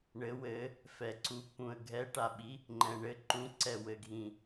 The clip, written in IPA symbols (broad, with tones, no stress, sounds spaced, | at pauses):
ɳ ɘ˨˦ w ɘ˨˦ | f ɛ˨˩ ǀ u˨˦ p ũ˨˩ ə̯ ɡʱ ɛ˨˦ ʈ a˨˩ ɓ i˨˦ | ŋ͡ǃ ɛ̃˨˩ ɳ ɘ˨˦ ǃ ũ˨˦ ǀ ɛ˨˩ w ɘ˨˩ ɡʱ ĩ˨˩